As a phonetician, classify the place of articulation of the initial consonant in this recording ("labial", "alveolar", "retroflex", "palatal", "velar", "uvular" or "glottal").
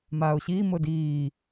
labial